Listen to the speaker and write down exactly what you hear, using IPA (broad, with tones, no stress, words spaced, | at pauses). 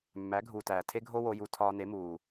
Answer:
mːæ˩˥ ɡʱuː˩tæː˩ tʰe˥ɡʱo˥ wo˧ju˧ tʰɒː˧ne˩˥muː˩